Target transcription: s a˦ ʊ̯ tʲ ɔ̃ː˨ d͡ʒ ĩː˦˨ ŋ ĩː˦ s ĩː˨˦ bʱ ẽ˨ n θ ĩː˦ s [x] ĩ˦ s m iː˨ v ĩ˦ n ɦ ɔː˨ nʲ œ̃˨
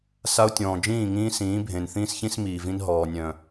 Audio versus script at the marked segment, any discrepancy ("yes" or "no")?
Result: yes